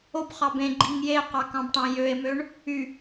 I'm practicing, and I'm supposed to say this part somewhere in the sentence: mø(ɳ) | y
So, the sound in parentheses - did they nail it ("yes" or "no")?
yes